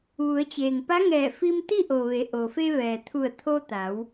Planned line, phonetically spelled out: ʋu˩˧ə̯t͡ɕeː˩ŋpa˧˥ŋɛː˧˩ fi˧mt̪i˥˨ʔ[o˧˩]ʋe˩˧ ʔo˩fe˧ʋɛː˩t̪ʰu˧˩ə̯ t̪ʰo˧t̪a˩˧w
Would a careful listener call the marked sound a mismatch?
yes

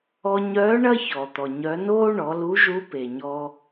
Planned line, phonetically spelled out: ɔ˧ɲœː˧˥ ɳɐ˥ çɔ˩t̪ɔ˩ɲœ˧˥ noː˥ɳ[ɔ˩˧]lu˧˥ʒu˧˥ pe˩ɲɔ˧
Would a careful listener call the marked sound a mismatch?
no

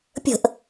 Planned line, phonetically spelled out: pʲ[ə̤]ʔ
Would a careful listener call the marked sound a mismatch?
no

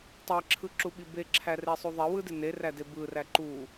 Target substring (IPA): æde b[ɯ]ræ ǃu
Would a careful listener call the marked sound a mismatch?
no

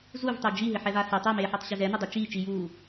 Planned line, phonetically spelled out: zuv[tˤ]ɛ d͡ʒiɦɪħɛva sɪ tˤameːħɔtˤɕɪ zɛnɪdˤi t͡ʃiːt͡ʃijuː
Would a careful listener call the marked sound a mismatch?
no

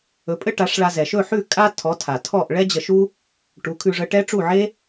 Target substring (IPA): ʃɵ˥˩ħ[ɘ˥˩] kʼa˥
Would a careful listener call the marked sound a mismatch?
yes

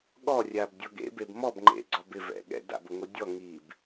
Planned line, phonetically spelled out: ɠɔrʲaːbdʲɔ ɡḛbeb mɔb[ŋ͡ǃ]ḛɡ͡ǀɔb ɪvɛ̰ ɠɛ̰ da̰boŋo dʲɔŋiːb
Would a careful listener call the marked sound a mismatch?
no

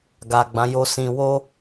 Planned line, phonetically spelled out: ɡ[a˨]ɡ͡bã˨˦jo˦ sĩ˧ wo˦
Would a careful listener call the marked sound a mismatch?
no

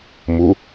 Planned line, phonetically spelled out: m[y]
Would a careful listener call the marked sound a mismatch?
yes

